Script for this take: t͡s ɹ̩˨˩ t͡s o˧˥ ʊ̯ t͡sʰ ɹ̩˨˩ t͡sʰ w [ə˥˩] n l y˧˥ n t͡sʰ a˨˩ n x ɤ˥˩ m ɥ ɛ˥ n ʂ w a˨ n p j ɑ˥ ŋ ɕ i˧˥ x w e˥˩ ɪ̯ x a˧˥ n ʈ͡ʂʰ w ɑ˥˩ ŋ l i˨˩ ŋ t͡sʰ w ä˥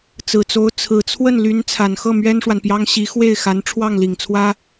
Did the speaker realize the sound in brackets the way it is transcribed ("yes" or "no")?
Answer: yes